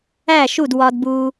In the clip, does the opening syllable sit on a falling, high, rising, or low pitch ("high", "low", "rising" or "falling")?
falling